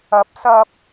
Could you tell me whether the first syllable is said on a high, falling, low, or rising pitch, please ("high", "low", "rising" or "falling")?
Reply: rising